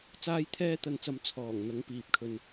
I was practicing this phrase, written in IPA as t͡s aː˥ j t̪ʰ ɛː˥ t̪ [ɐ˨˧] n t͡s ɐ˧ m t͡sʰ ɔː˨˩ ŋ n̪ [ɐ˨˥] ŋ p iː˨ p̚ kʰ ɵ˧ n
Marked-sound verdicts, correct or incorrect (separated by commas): incorrect, incorrect